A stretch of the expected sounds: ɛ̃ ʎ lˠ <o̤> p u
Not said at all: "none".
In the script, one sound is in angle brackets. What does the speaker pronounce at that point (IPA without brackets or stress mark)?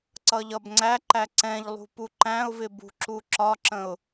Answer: ṳ